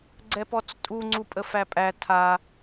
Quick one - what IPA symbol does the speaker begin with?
ɡ͡ǀ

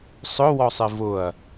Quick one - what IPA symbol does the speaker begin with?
sˤ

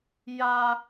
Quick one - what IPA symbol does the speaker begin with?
j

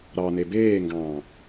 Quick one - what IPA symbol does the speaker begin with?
ɾ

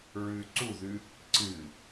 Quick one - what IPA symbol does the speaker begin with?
ɹ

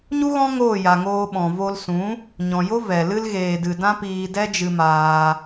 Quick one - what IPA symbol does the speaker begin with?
ɲ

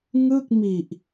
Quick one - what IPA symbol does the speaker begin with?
ŋ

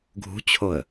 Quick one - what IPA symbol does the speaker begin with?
ɡʱ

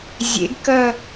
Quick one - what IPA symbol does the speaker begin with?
zʲ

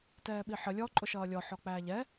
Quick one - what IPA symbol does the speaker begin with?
t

